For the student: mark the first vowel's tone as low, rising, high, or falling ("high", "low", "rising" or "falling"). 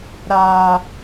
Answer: low